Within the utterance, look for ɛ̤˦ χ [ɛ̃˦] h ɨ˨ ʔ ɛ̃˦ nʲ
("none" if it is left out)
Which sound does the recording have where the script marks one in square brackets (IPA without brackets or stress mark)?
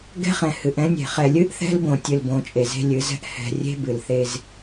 ɛ̃˨